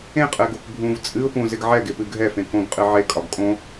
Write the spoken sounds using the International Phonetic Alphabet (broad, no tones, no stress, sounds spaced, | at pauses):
ẽ qʼ ɛ ɡ o k bʱ ũ v t͡sʼ ɨ ʊ̯ p ũ z ɪ ɡ ʕ ɛ ɡ e p ɨ ɡʱ ɛ f ẽ k õ ɡ qʼ ɨ ʕ e kʼ ɒ ɡ kʼ õ